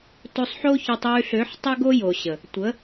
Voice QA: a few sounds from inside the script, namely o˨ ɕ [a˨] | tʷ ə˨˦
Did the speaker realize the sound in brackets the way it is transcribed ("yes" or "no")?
no